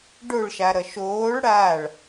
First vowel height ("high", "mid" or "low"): mid